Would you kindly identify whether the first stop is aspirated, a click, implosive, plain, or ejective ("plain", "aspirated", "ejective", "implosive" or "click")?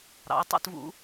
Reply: plain